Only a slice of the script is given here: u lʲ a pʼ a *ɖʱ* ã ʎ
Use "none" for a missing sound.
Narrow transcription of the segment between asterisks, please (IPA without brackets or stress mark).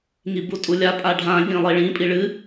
ɖʱ